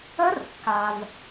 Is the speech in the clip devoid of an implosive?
yes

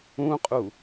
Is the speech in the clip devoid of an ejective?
no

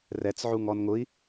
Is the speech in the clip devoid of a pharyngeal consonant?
no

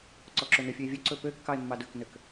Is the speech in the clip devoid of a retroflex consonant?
yes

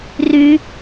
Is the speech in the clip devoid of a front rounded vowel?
no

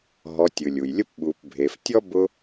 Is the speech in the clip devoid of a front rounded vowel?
yes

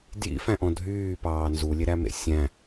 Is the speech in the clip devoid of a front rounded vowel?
no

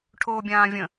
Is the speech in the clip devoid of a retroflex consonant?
no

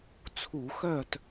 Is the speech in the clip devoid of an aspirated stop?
no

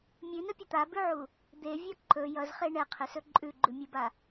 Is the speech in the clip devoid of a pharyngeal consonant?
no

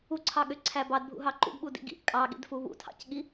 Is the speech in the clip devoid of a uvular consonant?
yes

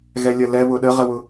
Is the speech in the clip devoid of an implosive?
no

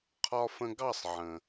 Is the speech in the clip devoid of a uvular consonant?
no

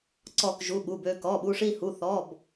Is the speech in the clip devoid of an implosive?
no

